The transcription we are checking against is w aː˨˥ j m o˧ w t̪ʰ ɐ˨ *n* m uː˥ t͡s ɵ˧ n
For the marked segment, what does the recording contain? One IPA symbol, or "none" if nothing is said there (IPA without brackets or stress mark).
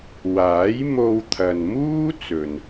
n